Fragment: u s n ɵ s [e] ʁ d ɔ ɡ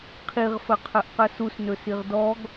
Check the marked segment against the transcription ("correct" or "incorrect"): incorrect